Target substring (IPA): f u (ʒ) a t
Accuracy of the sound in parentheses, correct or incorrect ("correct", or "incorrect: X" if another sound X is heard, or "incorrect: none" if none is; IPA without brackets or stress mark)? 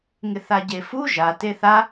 correct